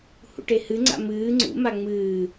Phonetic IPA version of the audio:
hṵʈehɨ ŋ͡ǀa̰mɨː ŋ͡ǀṵ maŋ͡mɨː

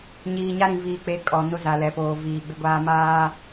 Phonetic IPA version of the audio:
ɲiː˨ɲa˦ɾĩ˨ viː˨k͡pe˨˦ kʼɔ˨ nʊ˦za˨lɛ˨poː˨ viː˨ɡ͡bɪ˦ɡʷaː˦ maː˦

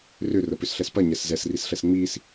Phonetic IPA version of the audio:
rʏrə pʏsɬɛspɐ ɲɛszɛsrisɬɛs ŋ͡mis

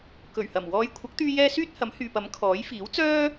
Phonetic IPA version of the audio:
kɵ˨˩ɥhɐ˨˩m wɔː˨˧jkʷʰɐ˨˥k̚t̪yː˧jɛː˧ syː˥t̚hɐ˨˥mhyː˨pɐ˨˥m kʰɔː˨˥j fiː˨˥wt͡sœː˥

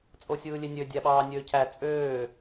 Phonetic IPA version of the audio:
t͡sʼosʲɯːlʲenʲø dʲæɓɑːnʲøːcʰæ t͡sʼøː

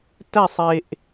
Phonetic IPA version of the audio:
tæ˥˨sˤe˧ʔ

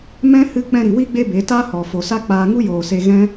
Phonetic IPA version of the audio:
mɛ̃˦ hɨ˦ k͡pɛ̃˧ɾi˨wi˦ ɡ͡be˦be˨˦ta˦hɔ˨ fo˨sa˦ k͡paː˧ŋu˦ joː˨se˧ ɣɛ̃˦

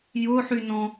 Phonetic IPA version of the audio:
jʊħynɔ̃

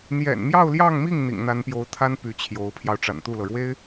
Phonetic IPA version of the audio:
n̪jɛ̰˨˩nmjɑ˥˧ʊ̯ljɑ˥˧ŋmi˥˩ŋ n̪ḭ˨˩ŋn̪a˧˥npjo˧˥ʊ̯t̪ʰa˥n py˧˥t͡ɕʰjo˧˥ʊ̯pʰjɑ˧ʊ̯ ʈ͡ʂa̰˨˩nt̪u˥˩lɤ˩ɻwe˥ɪ̯

